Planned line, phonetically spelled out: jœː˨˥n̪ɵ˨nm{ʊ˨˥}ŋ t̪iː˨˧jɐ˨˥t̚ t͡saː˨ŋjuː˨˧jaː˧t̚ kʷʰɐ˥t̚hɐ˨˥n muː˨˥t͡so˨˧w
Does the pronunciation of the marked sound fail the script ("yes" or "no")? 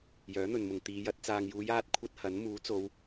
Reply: yes